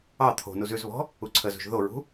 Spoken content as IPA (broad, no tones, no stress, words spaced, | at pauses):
ɑ t̪ʰo̤nuz ʉzβɔ̤ | uǀʰəzṳʒ ðoɹṳ